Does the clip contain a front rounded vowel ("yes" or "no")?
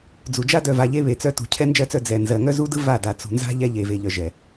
yes